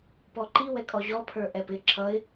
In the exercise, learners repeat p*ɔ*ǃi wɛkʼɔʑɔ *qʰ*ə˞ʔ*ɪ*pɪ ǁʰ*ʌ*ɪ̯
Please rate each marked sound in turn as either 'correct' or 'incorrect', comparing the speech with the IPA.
correct, incorrect: pʰ, incorrect: ɛ, correct

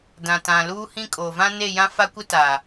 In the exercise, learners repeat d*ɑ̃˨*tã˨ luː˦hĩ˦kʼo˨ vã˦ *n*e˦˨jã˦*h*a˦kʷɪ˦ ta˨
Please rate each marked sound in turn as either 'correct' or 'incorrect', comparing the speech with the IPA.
incorrect: ã˨, correct, incorrect: f

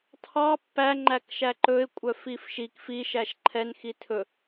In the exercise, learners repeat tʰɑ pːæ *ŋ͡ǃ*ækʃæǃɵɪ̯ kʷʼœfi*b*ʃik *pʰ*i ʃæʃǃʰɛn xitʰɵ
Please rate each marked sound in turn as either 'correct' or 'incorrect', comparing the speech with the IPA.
correct, incorrect: f, incorrect: f

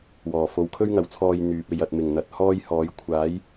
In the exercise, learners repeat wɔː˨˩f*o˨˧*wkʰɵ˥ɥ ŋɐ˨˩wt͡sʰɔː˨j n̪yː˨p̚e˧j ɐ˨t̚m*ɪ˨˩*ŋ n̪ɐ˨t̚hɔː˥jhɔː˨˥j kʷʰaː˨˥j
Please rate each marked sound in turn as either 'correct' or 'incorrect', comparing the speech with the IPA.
correct, correct

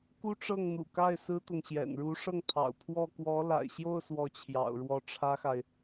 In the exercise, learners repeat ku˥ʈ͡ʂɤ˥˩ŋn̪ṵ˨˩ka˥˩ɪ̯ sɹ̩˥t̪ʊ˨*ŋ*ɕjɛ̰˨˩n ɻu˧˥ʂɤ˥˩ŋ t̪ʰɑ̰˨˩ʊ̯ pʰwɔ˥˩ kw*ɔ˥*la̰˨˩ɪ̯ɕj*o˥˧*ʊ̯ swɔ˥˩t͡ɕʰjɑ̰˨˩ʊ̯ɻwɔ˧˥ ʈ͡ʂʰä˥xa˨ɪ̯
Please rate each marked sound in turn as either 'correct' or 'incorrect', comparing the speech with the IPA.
correct, incorrect: ɔ˧˥, correct

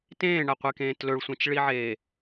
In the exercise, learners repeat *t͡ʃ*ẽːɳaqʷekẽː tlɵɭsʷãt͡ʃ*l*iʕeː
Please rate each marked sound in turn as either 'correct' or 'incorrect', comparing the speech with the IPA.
incorrect: t, incorrect: ɭ

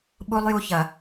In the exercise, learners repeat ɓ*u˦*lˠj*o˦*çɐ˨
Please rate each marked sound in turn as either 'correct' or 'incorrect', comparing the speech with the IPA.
correct, incorrect: u˦

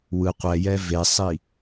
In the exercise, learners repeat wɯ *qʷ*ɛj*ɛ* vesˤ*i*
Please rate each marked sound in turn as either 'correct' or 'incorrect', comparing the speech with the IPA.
correct, correct, correct

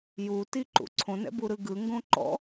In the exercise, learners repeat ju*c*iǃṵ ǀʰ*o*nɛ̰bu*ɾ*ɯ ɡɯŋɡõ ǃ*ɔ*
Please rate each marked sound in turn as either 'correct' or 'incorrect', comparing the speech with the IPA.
incorrect: t, incorrect: õ, correct, incorrect: ɔ̰

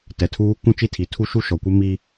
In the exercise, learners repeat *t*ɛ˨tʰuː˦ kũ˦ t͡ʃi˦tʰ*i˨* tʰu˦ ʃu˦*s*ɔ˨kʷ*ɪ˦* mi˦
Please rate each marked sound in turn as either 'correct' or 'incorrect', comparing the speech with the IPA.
correct, correct, incorrect: ʃ, correct

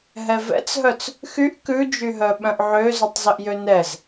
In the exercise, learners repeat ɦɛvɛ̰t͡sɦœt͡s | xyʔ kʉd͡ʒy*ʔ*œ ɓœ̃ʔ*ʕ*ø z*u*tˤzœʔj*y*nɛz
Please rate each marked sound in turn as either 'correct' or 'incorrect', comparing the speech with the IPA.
incorrect: ɦ, correct, incorrect: ʉ, incorrect: ø

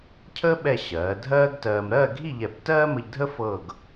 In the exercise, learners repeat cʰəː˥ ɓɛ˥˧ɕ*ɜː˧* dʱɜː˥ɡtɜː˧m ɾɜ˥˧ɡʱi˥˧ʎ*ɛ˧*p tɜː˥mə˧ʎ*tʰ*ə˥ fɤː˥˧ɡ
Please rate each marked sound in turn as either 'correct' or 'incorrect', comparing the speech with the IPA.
incorrect: ɜː˩˧, incorrect: ɛ˧˩, incorrect: dʱ

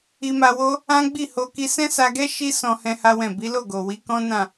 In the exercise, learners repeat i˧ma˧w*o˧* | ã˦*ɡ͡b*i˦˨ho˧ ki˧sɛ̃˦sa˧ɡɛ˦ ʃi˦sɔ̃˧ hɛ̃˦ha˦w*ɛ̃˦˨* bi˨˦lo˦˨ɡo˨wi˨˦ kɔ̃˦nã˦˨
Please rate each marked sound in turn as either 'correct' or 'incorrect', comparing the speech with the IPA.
incorrect: o˦, correct, correct

